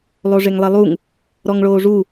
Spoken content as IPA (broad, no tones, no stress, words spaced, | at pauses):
lˠoʐeŋlˠɛlˠuŋ | ɾɔŋɭoːʐu